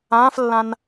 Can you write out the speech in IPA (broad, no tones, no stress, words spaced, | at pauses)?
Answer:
ãːflːãn